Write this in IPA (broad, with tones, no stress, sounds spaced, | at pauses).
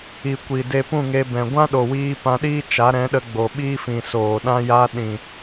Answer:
i˨ kʷ i˨ d e˧ p ũ˦˨ ŋ e˧ b ɛ̃˨ ɡʷ ã˦ ɗ o˨ w iː˧ p ã˧ ɗ iː˦ t͡ʃ a˨˦ ɾ ɛ̃˨˦ ɗ ə˧ ɡ͡b o˨ ɓ iː˦ f ĩ˨ s oː˨ ɗ ã˦ j a˧ ɗ ĩ˨